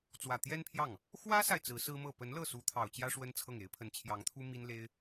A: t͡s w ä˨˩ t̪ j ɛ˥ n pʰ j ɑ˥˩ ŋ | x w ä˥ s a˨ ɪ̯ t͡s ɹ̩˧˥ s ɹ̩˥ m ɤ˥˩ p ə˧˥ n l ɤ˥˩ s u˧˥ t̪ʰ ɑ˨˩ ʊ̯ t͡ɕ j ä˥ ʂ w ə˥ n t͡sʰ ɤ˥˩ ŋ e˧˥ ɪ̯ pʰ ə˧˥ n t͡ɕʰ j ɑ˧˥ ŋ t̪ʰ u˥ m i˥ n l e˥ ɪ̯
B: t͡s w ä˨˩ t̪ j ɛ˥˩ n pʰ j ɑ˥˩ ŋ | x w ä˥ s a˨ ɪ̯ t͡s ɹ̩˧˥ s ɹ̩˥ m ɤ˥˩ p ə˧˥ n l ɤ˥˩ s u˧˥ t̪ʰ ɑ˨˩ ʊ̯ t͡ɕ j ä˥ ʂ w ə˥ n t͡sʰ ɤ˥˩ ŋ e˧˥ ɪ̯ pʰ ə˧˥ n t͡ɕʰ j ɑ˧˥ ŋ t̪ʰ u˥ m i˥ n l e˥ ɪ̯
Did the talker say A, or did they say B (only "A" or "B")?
A